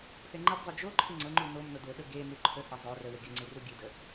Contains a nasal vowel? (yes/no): no